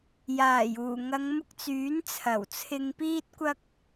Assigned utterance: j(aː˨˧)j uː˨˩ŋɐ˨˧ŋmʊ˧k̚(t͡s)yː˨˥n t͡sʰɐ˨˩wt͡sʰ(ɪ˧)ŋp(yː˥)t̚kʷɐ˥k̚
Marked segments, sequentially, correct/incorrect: incorrect, correct, correct, incorrect

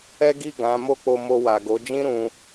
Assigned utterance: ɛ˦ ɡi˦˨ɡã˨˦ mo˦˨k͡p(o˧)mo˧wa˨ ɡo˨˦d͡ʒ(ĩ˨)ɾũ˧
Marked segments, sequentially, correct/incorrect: correct, incorrect

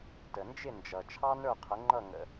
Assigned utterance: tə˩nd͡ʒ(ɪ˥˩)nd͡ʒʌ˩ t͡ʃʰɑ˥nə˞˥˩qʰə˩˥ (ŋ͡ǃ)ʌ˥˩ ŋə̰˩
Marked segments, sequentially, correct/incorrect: correct, correct

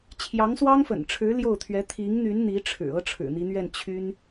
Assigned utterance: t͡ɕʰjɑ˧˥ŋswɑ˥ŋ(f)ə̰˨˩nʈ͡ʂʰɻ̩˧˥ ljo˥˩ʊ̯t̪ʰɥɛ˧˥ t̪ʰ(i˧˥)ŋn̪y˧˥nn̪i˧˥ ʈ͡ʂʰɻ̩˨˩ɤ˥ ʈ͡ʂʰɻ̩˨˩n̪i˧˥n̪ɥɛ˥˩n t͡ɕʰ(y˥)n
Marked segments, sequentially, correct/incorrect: correct, correct, correct

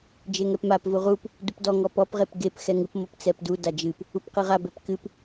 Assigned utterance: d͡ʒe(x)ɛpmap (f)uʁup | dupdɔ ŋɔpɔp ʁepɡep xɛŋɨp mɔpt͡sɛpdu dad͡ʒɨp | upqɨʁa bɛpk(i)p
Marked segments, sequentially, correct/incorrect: incorrect, incorrect, incorrect

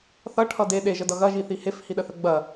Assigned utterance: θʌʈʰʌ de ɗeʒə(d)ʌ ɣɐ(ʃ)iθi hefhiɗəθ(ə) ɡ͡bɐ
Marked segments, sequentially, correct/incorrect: correct, incorrect, correct

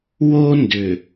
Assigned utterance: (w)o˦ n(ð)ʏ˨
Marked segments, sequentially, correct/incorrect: correct, incorrect

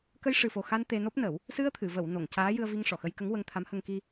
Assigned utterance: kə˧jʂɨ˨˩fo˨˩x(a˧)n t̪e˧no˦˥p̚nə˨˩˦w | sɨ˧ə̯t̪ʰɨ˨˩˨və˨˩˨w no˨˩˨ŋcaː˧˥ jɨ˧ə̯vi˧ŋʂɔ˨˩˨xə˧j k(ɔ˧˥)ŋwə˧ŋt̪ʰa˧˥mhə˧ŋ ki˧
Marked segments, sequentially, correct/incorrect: correct, incorrect

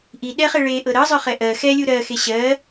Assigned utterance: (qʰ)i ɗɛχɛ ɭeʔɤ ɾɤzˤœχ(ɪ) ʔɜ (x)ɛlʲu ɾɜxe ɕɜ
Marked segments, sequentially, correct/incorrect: incorrect, incorrect, correct

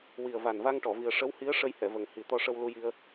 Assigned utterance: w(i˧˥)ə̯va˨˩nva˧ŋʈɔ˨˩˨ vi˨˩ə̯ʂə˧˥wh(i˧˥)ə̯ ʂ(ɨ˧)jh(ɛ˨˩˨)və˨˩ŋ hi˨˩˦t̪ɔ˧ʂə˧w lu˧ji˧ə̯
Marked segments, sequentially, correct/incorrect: incorrect, correct, incorrect, correct

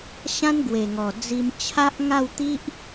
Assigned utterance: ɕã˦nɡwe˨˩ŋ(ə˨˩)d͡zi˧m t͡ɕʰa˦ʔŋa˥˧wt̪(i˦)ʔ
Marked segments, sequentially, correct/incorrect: incorrect, correct

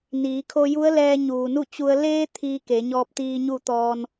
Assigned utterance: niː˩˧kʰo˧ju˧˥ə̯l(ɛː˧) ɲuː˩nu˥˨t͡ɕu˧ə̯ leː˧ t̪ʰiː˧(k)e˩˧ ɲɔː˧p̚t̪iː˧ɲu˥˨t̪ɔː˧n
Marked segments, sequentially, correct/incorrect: correct, correct

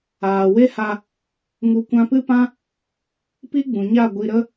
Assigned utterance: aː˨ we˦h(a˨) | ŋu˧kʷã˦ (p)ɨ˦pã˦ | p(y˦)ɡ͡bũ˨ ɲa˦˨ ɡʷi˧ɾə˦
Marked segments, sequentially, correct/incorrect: incorrect, correct, incorrect

